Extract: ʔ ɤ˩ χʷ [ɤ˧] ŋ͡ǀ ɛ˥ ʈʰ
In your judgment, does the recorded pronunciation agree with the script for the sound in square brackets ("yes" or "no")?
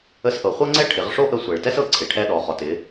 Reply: no